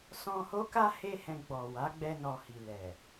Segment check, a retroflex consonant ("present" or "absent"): absent